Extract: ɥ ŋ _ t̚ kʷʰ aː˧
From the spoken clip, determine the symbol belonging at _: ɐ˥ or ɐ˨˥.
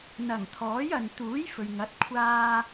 ɐ˨˥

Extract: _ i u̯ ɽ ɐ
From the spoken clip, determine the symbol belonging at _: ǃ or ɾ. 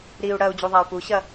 ɾ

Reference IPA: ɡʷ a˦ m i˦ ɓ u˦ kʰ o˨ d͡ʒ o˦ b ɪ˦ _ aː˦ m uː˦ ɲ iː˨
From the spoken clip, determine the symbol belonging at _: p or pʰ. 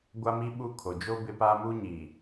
p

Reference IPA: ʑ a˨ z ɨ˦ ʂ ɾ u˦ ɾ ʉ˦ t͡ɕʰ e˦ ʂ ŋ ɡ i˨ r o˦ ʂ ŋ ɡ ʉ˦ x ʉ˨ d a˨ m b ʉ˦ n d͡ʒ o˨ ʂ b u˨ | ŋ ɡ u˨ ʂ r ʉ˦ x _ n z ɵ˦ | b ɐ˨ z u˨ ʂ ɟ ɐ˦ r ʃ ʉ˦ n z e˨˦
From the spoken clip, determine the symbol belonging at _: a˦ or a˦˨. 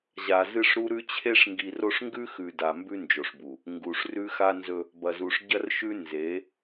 a˦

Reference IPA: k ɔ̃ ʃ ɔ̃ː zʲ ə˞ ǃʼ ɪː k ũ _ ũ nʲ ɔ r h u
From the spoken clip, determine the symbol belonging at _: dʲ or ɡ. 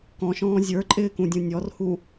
dʲ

